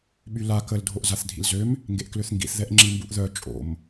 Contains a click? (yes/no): yes